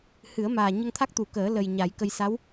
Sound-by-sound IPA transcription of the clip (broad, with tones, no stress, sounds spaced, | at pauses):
h ɨ˨˩˦ ə̯ m aː˨˩ ɲ ə˧ ŋ t̪ʰ a˦˥ k̚ t̪ u˨˩˦ k əː˨˩˦ l ə˨˩ j ɲ a˨˩˦ j k ə˧ j s a˧˥ w